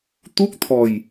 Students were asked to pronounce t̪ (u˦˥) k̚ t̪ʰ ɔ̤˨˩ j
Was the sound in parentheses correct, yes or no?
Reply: yes